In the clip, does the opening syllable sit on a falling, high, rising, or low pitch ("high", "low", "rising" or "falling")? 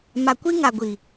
low